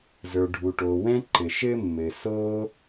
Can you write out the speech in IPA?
z ə˞˩ ɖʱ u˩ ʈ o˩ w ɛ̃˥ ǃ ɘ˩ ʃ ɘ˥ mː ɘ˩ s o˥

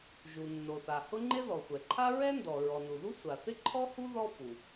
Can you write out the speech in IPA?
ʒ u˩ nː o˩ θ a˩ h ʊ˥ ŋ͡ǃ ɪ˥ ð ɔ˩ xʷ ɛ˩ ǃʰ a˥ ɹ ɛ˥ n d ɔ˩ ɹ ɔ˩ n u˩ ð u˥ sʷ a˩ θ ɪ˥ ǃʰ ɔ˥ h u˥ ð ɔ˥ f u˩

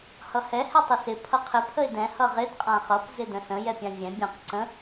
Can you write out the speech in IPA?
h ʌ h ɛ h ɛ tˤ ɪ s ɪ pʰ ʌ qʰ ɪ pʰ ə ɪ̯ d ɛ̃ h ʌ ʁ ɪ d qʼ ã χ ʌ p z ɪ d ə̃ s ə̃ j ɛ pʲ ã vʲ ɛ̃ bʲ ə̃ q ǀ ə̃

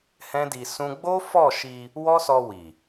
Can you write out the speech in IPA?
h ɛ̃˦ d i˧ s ũ˦ ɡ͡b o˦ f ɔ˦˨ ʃ i˧ | w ɔ˦ s ɔ˧ w i˨

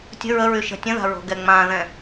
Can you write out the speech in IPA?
tʲ ə̤ ɹ ə ɹ y ʃ ə̤ tʲ ə̃ ð a̤ ɹ o̤ ɡ ɛ ŋ͡m ã ð ɛ̃

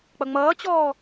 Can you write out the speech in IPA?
k͡p ʌ ŋ͡m ʌː t͡ɕ ɔː

